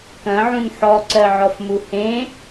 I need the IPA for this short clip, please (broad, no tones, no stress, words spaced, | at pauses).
kɐ̃ʕũn ħɔǀɜʕɔfmu hẽ